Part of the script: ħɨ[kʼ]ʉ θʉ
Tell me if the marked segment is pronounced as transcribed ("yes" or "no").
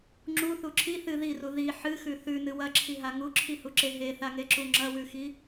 no